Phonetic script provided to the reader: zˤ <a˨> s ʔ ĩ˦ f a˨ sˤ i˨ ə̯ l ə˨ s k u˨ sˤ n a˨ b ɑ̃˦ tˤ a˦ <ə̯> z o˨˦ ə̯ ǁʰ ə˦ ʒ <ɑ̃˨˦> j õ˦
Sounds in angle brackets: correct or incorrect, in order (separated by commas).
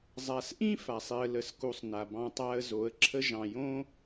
correct, correct, incorrect